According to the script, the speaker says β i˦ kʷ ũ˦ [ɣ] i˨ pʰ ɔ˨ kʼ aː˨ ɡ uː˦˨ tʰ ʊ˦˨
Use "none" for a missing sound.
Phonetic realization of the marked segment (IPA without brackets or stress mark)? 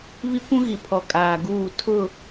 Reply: ɣ